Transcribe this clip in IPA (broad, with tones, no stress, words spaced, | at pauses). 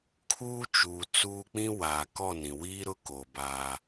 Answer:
kʰuː˦t͡ʃuː˨t͡suː˦ k͡pĩ˦waː˨kɔ˦˨nĩ˨ wiː˦ɾʊ˦koː˨ ba˦